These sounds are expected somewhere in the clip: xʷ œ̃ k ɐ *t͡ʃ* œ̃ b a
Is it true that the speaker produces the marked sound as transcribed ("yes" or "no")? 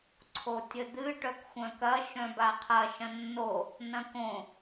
no